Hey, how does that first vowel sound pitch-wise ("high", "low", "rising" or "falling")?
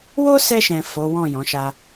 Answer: high